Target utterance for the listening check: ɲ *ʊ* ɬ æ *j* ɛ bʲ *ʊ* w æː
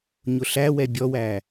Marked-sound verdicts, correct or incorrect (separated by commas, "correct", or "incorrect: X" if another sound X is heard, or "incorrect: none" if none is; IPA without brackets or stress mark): correct, incorrect: w, incorrect: ɔ